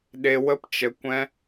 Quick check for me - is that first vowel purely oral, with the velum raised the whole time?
yes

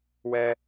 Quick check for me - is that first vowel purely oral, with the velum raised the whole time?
yes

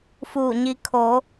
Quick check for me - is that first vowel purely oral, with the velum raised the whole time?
yes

